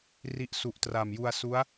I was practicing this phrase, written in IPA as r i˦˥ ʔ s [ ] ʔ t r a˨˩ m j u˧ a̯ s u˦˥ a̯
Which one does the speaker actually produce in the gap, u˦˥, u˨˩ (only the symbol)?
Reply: u˨˩